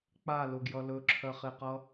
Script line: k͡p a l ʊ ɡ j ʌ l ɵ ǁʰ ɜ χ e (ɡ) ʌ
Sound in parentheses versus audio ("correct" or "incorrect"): incorrect